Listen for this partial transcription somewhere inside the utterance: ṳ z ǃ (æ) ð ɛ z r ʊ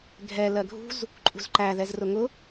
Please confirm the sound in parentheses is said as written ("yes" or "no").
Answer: yes